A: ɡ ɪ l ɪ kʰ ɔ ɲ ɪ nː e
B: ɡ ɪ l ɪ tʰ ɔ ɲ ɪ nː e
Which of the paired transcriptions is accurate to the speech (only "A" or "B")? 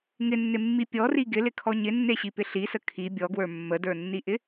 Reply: A